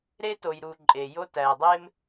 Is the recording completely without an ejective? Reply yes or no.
no